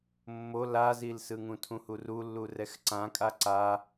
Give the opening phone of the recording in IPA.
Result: mː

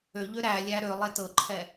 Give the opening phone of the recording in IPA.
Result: ø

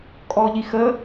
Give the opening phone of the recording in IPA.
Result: kʼ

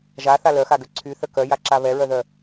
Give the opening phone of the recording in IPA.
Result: ʒ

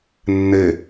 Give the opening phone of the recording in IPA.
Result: nː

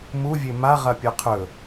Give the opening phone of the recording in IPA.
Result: m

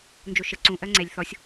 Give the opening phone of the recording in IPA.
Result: n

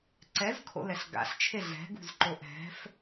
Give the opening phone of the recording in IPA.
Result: ǀ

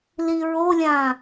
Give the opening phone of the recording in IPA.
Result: l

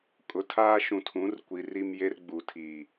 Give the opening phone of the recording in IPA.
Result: kʼ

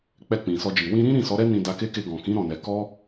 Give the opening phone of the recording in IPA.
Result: k͡p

